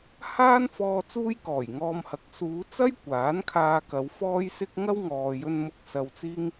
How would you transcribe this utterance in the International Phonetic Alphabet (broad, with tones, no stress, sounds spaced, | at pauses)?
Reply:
h aː˥ n f ɔː˧ t͡s uː˥ j k ɔː˨˩ j ŋ ɔː˧ m h ɐ˨˥ k̚ s uː˨˧ t͡s ɐ˥ j kʷ aː˨˥ n kʰ aː˧ k ɐ˨˧ w f ɔː˥ j s ɪ˥ k̚ ŋ ɐ˥ w ŋ ɔː˨ j ɵ˧ n m ʊ˧ k̚ s ɐ˧ w t͡s iː˥ ŋ